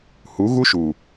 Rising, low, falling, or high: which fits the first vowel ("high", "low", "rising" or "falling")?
rising